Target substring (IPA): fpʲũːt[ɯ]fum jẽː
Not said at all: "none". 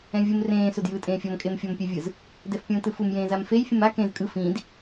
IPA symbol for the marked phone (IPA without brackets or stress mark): ɯ